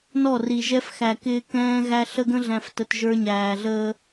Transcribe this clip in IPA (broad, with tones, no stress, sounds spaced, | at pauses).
n ɔ˦˨ r i˨ ʒ ɛ˦ f x æ˨ k ɪː˦ k ɛ̃ː˦ ɣ æ˦ ɬ ə˦ ɡ ə̃˦ ɮ æ̃˨ f t ə˨ t ʒ ə˞˦ ɲ æː˨ ɮ əː˦